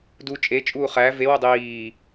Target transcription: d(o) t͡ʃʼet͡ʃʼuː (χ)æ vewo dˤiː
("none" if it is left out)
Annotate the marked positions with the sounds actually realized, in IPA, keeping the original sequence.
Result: u, χ

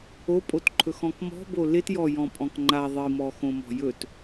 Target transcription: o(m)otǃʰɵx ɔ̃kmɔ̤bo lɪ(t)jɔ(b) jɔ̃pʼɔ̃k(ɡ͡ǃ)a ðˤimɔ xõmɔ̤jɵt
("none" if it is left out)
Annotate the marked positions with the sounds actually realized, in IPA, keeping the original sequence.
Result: pʼ, t, none, ŋ͡ǃ

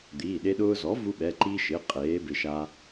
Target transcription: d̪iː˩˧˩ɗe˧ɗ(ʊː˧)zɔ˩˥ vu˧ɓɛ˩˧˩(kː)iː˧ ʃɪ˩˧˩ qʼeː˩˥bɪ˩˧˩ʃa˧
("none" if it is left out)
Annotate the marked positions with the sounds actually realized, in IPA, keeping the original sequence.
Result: ʊː˧, ǃ

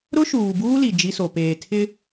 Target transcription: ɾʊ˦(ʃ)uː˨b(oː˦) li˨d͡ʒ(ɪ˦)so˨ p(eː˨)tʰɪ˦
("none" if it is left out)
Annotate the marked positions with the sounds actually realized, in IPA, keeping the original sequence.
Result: ʃ, uː˦, i˦, eː˨

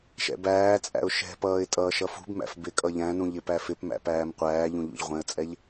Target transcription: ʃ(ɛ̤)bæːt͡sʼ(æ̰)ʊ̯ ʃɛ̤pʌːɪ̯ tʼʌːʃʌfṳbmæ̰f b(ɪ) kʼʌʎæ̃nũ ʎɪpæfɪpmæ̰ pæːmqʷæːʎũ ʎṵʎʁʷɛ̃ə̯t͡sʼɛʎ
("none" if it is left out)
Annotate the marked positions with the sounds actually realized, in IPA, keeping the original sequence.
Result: ɛ̰, æ̰, ɪ

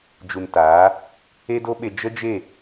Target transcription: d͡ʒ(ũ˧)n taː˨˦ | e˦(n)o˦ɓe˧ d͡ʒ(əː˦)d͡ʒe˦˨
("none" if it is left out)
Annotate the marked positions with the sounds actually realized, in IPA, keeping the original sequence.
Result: u˧, d, ə˦

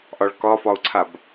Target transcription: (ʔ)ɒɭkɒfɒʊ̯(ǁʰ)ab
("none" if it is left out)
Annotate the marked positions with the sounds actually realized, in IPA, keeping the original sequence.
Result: ʔ, ǀʰ

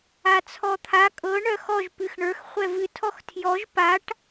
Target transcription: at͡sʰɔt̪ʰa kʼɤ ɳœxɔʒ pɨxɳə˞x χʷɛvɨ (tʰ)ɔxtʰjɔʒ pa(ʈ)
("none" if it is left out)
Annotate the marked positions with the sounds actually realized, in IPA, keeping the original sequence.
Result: tʰ, ʈ

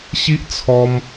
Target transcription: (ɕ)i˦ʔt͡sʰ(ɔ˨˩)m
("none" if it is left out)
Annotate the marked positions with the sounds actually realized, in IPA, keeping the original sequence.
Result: ɕ, ɔ˧

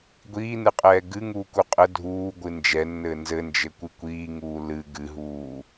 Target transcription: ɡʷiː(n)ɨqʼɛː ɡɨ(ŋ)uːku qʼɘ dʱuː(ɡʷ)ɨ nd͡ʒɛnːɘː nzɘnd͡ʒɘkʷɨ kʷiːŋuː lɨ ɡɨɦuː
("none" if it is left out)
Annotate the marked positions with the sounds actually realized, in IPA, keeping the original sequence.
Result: n, ŋ, ɡʷ

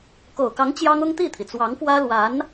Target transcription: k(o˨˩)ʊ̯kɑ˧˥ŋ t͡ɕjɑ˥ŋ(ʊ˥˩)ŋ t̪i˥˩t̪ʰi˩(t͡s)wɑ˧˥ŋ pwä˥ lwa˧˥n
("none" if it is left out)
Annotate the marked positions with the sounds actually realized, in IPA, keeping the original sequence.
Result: o˨˩, ʊ˥, t͡s

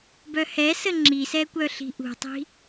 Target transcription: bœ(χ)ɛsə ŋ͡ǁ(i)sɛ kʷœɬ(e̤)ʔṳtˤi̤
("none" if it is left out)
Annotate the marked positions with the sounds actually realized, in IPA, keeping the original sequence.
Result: h, i, i̤

